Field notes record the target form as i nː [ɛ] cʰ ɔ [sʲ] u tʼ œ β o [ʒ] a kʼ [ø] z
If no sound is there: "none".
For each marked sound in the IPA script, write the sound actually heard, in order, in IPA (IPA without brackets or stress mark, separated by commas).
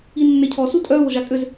ɛ, s, ʒ, ø